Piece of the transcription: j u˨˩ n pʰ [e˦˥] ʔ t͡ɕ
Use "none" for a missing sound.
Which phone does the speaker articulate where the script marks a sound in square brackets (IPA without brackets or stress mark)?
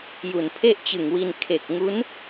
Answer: e˥˩